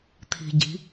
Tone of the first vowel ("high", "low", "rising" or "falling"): low